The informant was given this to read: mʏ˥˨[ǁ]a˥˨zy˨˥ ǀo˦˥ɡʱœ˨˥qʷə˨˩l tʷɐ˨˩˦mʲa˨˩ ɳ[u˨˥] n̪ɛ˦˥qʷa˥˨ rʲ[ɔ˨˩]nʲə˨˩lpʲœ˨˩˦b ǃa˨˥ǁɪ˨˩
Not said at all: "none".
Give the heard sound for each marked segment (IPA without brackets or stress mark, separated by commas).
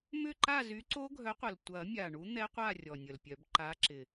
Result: ǃ, u˨˥, ɔ˨˩